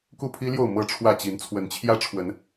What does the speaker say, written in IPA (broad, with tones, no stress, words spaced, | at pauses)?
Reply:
ku˥˨pʰi˦ljo˥˨ʊ̯ mɤ˥˨ʈ͡ʂʰwä˥˨ t͡ɕi˨˦nt͡sʰwə˨˦nt͡ɕʰjä˦ ʈ͡ʂʰwə˨˦n